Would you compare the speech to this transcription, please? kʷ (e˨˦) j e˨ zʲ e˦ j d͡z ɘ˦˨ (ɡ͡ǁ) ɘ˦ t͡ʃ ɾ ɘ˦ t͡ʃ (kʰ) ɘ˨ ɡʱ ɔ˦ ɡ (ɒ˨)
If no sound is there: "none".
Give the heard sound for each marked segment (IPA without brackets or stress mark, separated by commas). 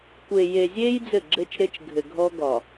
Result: e˨, ɡ͡ǁ, ɡʱ, ɒ˨